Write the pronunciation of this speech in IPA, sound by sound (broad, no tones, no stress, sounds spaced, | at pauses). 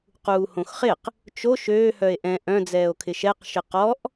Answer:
q uː h õ x χ ɪ q | t͡ʃ o ʃ øː h œ e̯ ʔ ɛ̃ ʔ œ̃ d͡z ɛː o̯ kʰ ɪ ʃ ɛ q ʃ ɪ q ɔ ʔ